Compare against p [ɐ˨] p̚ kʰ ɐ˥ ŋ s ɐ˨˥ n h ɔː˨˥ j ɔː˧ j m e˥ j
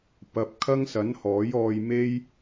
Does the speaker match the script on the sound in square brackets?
no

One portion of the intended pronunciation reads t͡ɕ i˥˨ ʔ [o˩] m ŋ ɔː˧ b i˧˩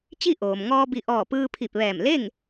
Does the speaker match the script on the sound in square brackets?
no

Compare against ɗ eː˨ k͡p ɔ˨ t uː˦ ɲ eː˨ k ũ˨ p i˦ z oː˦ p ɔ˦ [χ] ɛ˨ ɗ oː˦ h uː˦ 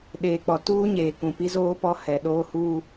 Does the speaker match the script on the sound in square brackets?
no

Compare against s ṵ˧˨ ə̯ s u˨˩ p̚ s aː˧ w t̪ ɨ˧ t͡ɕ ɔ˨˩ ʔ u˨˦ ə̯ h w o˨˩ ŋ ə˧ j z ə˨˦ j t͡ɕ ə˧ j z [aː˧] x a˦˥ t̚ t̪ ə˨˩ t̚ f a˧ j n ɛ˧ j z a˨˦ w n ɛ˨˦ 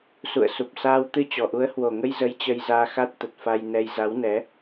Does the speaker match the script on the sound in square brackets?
yes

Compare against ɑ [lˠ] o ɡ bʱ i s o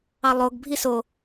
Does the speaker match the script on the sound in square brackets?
yes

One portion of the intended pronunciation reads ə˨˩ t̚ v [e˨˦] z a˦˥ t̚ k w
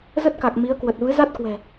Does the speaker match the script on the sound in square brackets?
no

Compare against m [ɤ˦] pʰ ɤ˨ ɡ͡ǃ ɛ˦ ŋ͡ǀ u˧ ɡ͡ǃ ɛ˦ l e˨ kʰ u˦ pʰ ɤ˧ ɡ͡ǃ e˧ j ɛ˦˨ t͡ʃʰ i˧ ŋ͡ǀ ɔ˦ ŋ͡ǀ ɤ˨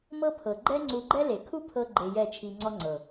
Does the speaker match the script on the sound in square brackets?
yes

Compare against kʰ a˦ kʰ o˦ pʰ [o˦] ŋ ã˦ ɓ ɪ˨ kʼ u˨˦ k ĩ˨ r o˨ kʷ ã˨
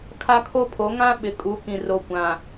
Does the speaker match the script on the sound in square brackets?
no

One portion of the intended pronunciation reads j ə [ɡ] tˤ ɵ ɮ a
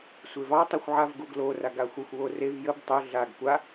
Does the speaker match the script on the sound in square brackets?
no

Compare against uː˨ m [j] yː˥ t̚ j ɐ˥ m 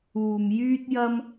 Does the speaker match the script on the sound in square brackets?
yes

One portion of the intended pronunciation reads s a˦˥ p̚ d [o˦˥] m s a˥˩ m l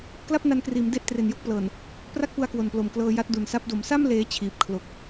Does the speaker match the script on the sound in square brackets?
no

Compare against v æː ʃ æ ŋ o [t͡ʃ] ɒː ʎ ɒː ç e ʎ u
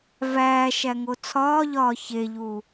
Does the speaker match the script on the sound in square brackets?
no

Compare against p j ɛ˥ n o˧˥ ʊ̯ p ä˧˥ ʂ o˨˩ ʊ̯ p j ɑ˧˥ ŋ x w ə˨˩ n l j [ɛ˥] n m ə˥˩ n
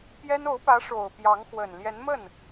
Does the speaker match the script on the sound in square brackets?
no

